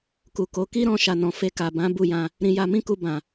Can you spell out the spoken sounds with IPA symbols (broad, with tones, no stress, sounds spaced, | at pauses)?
k u˨ k o˨˦ k i˦ ɾ ɔ̃˧ ʃ a˨ n ɔ̃˨ f e˧ k a˨ b ã˨˦ b u˦˨ j ã˧ | ɾ ĩ˧ j a˧ m ĩ˦ k u˧ b ã˨